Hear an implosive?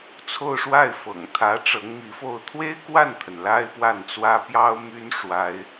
no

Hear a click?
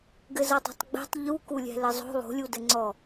yes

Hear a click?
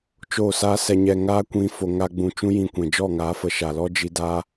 no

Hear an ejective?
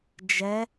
no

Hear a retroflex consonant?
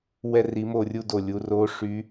yes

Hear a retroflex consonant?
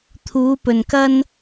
no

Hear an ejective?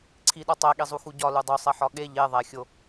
no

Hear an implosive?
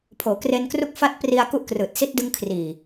no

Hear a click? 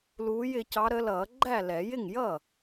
yes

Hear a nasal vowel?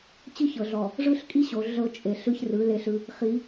no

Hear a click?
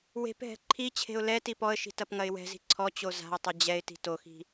yes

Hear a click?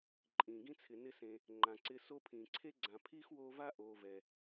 yes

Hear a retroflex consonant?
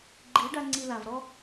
yes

